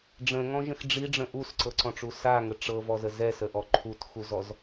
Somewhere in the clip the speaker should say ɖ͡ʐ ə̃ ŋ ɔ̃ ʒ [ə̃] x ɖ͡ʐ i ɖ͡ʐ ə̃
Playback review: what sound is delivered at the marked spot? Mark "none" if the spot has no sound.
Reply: ə̃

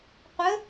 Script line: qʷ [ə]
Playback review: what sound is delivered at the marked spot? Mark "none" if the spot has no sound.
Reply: ə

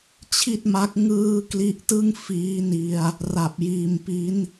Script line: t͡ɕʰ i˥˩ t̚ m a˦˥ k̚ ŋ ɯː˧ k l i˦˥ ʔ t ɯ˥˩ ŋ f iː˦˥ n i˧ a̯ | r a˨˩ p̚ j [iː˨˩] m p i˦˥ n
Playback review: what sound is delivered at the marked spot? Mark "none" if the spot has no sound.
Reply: iː˨˩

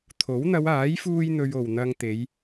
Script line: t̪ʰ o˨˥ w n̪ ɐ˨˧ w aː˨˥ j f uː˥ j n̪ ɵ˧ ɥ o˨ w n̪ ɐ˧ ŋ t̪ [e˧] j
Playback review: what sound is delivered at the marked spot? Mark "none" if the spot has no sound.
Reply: e˨˧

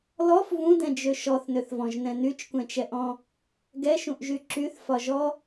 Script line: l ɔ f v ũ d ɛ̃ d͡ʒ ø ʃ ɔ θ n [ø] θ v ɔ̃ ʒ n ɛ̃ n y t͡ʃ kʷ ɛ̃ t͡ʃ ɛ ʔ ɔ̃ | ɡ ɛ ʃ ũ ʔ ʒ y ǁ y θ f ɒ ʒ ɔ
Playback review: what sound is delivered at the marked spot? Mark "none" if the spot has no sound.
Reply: ø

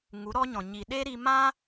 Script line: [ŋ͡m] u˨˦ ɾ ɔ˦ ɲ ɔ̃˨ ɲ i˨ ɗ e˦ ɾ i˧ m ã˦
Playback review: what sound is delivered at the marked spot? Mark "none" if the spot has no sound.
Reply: ŋ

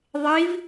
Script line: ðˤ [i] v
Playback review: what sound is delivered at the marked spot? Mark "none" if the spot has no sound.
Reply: i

